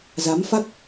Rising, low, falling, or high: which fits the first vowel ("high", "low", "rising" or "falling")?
rising